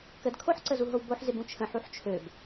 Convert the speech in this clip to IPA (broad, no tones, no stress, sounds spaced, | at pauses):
k ə d kʰ o ħ ǀ ə z u ɦ o w b o ħ z ɪ b ũ t͡ʃʰ ə̃ ħ u ħ t͡ʃʰ ø b